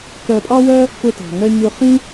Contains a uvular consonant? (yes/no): yes